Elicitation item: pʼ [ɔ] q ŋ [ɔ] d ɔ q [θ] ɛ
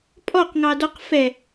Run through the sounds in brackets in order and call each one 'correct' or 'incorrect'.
correct, incorrect: ɑ, incorrect: f

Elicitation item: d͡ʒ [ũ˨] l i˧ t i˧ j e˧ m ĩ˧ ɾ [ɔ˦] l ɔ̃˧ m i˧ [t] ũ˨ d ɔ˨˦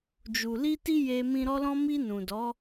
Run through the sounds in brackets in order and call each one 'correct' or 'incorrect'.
incorrect: u˨, incorrect: ɔ˧, incorrect: n

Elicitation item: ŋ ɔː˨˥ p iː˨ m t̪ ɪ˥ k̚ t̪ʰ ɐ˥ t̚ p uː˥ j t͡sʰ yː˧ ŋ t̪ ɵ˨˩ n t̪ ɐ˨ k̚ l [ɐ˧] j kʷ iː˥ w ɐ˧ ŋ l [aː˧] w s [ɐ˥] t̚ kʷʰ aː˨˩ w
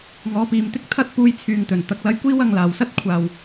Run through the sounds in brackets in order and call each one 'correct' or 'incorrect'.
correct, incorrect: aː˨˩, correct

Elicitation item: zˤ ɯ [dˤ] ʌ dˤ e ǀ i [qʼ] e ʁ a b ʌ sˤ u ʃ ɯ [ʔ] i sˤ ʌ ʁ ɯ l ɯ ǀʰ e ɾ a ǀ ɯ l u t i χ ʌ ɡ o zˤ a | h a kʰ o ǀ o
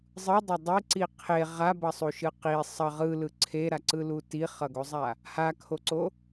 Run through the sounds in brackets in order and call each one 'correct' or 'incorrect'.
correct, incorrect: qʰ, incorrect: q

